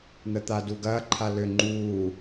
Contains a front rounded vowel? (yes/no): yes